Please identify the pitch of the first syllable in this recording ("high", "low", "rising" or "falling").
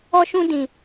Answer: high